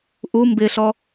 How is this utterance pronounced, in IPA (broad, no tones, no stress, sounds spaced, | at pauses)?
ʔ u m b ɪ ɬ ɔ